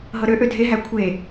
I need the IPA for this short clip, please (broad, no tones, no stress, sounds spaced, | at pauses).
ɦ ɤ ɾ ø ʔ ø dʱ e ɦ æ kʷʰ e